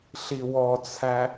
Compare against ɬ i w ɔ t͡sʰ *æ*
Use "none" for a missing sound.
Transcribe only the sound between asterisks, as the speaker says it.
æ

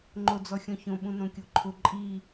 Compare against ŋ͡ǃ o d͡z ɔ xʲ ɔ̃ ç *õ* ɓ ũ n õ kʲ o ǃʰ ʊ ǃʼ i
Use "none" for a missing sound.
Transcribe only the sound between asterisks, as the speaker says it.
õ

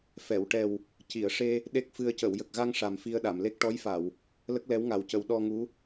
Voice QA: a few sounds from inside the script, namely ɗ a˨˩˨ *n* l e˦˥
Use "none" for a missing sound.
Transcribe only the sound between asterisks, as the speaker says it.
m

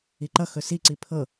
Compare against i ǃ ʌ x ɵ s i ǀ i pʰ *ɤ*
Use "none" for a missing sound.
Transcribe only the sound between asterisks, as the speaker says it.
ɤ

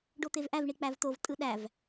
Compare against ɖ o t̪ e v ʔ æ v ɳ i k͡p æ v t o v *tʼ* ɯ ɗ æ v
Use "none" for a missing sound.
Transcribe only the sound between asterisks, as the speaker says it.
tʼ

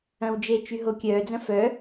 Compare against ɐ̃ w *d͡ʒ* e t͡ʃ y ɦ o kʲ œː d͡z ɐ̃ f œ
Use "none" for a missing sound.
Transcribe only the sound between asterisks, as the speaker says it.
d͡ʒ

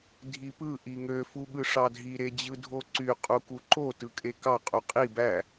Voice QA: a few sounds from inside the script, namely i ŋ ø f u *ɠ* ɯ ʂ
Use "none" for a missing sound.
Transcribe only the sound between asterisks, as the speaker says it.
ɠ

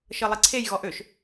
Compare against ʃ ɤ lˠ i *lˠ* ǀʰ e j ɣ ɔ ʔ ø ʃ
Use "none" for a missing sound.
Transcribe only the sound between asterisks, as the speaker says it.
none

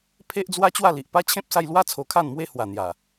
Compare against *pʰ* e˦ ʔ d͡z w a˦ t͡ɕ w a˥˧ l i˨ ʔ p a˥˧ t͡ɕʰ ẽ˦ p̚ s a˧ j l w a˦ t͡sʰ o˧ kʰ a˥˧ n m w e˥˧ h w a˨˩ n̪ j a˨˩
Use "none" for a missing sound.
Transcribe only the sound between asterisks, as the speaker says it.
pʰ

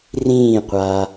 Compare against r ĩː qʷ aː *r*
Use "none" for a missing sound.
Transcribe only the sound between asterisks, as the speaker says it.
none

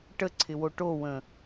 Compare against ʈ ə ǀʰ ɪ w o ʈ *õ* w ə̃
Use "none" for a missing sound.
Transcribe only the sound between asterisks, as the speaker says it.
o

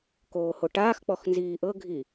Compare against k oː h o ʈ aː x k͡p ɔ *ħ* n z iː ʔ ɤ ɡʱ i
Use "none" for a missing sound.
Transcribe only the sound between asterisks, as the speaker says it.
x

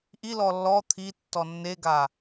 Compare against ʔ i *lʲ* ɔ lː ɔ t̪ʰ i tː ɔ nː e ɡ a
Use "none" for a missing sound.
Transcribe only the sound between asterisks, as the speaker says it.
l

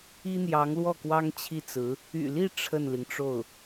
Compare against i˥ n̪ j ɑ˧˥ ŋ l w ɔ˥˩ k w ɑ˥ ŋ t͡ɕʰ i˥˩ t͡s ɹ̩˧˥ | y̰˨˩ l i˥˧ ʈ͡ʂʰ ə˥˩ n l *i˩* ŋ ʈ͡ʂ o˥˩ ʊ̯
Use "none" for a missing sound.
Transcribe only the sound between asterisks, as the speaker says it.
i˩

